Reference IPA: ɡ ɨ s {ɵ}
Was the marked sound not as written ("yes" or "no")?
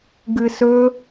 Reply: no